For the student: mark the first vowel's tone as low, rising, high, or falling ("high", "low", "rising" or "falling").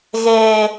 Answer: high